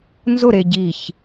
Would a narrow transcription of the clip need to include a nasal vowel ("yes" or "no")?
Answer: no